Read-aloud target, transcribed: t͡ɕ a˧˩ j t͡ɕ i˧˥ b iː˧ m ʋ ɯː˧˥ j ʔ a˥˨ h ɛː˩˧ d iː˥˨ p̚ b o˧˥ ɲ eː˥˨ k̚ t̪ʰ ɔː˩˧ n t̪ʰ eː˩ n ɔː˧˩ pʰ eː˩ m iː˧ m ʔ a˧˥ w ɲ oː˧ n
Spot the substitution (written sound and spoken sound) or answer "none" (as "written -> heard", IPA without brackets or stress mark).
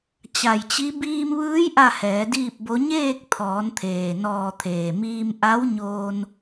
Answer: pʰ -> t̪ʰ